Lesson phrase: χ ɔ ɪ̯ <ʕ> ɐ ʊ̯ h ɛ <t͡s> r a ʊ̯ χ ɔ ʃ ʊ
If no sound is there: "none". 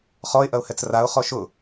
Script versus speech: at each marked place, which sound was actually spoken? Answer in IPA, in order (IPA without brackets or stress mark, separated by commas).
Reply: ʔ, t͡s